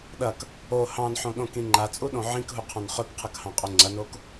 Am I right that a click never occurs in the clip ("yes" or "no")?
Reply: no